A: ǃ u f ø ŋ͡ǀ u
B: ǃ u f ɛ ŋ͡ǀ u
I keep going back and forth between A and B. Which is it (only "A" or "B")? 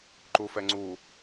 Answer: B